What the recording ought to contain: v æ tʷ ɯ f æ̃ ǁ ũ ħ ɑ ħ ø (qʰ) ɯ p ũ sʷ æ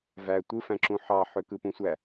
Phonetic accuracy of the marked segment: incorrect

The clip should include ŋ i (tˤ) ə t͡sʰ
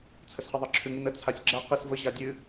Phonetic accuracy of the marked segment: incorrect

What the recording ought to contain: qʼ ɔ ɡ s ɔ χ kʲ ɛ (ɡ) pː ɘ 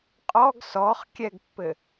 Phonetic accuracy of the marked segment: correct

